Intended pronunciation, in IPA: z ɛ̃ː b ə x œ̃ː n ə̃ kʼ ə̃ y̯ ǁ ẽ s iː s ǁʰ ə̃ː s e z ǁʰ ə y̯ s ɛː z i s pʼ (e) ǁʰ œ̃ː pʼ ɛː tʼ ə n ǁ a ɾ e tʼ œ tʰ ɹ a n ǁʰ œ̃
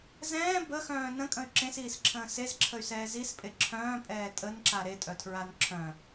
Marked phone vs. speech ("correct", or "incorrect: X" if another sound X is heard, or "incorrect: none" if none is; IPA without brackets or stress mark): correct